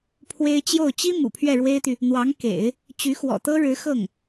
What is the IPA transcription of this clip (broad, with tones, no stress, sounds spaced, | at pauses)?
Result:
pʰ w e˥ ɪ̯ t͡ɕ j o˥˩ ʊ̯ t͡ɕ i˥ m ṵ˨˩ pʰ ɥ ɛ˥˩ ɻ w e˥ ɪ̯ t̪ y˨ | n̪ w ɑ˧˥ ŋ k ḛ˨˩˦ ɪ̯ | t͡ɕ y˧˥ x w ɔ̰˨˩ t̪ ɤ˥ ɻ ɻ̩˧˥ x ɤ˥˩ ŋ